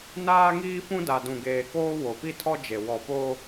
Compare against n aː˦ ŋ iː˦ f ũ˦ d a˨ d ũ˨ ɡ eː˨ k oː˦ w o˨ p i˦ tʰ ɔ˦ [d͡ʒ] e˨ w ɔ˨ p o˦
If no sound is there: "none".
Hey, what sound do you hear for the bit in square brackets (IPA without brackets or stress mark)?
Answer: d͡ʒ